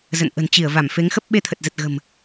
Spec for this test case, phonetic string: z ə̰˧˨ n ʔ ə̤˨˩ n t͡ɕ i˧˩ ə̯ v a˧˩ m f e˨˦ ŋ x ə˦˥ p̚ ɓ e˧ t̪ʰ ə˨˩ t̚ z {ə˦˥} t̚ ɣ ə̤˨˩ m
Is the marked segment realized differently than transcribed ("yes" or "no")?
yes